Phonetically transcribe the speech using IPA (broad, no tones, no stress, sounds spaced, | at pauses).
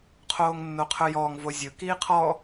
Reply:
qʰ oː ŋ nː o qʰ ɵ j ɔː ŋ v o zʲ ɵ k iː qʰ ɔ